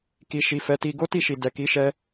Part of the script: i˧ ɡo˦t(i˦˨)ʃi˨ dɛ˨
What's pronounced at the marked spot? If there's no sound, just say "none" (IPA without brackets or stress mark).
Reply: i˦˨